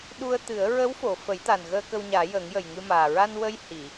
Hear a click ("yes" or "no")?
no